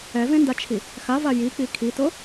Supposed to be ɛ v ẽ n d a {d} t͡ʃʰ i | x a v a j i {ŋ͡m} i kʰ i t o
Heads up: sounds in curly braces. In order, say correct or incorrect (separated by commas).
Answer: incorrect, incorrect